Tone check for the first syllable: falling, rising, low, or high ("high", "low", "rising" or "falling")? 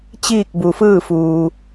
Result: falling